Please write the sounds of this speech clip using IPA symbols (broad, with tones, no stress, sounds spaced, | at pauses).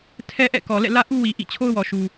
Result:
tʰ ɛ˦ ʔ ɛ̰˦˨ k ɔ˨ l ɛ̰˦˨ l ä˦ ʔ u˦ w i˨ ʔ ḭ˦˨ t͡ɕʰ o˦ ʊ̯ w ɔ˨ ʃ u˨